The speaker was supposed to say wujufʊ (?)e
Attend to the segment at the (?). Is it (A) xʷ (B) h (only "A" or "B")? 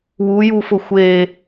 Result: A